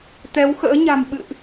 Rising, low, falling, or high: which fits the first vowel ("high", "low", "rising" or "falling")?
rising